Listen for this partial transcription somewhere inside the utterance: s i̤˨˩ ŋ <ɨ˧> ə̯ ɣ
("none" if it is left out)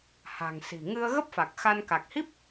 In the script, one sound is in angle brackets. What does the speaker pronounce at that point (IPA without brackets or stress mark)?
ɨ˧